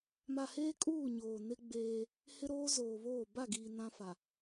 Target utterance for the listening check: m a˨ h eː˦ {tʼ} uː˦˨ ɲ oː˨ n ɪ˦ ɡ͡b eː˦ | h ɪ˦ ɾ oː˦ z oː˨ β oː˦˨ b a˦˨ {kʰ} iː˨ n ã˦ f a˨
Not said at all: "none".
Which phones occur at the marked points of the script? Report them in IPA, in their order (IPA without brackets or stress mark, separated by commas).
kʼ, ɡ